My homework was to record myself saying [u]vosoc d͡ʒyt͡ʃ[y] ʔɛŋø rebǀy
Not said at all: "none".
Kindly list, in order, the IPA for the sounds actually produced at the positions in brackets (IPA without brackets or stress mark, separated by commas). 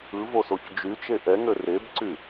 ɯ, e